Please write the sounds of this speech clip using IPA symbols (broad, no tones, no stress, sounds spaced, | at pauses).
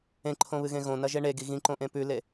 ẽ ǃʰ õ β ɨ ɣ ẽ ɣ õ n ɐ ʒ e ɳ e ɡ i ɣ ĩ ǃ õ ʔ ẽ p ʉ l e